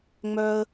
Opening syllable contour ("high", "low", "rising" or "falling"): high